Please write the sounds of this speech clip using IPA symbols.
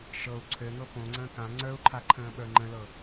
ʃɤu̯ ǀʰøŋɤ põŋ͡ǀə̃ː kã ŋ͡ǀə˞u̯ǃʰa ǃʰə̃ːɓə˞ŋ͡ǃə̃lɤ

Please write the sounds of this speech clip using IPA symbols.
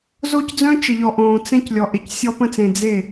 zo˦cd͡zœ̃˦t͡ʃə˨ʎɔ˨ ʔõː˨t͡sɛ̃˦c lʲɔ˨ʔe˨csʲɔ˦ pə̃˦t͡sẽ˨ d͡ze˦˨

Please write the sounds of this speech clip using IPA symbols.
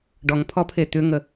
ɖɔŋpʰɔpʰe t̪ʏŋə

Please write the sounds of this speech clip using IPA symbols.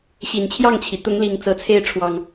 ɕi˨˩nt͡ɕʰjɑ˥˨ŋt͡ɕʰi˩ t̪ʊ˨˦ŋli˨˩ŋ t͡sɤ˨˦t͡sʰe˥˨ɪ̯ʈ͡ʂʰwɑ˨˩ŋ

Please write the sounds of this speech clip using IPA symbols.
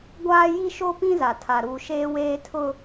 ɡʷaː˦ji˦ʃo˦pĩ˦ za˨tʰa˨ ɾuː˨ʃeː˦weː˦ tʰʊ˦

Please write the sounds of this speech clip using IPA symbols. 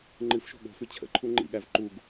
ŋ͡ǃɨfʃo̤ ɠo̤fʉ t͡ɕʰə̰ǃʰu ŋ͡ǃḭɠæv ǃuɡ

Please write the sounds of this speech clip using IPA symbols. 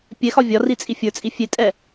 pʲɛxɒ vʲɒrit͡sʼi fʲə˞t͡sʼi fʲetʼɛ

